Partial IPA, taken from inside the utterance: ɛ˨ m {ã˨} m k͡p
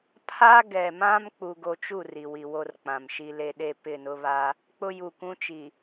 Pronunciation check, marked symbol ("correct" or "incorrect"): incorrect